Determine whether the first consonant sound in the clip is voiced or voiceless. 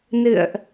voiced